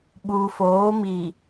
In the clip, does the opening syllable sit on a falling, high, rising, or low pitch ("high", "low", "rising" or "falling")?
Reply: low